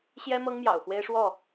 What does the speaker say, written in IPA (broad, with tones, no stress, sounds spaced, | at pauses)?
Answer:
ɕ j ɛ˦ m ɤ˦ ŋ m j ɑ̰˨˩ ʊ̯ x w e˦ ɪ̯ ʂ w ɔ˥˨